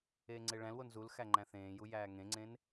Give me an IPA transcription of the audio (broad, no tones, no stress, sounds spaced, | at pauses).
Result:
eː ŋ͡ǀ e ɭ æ̃ l w o n z u l x æ ŋ͡ǃ æ̃ θ ẽː j u j æː ŋ ẽ ŋ͡ǀ ẽ n